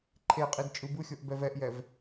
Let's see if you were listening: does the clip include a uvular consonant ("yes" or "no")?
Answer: yes